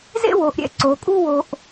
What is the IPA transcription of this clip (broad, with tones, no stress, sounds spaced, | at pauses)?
z ḛ˥ w o˩˧ ʔ ɾʲ ɛ̰˧ ǀ o˩˧ kʼ u˥ w o˧ ʔ